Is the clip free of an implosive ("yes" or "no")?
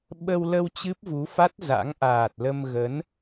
no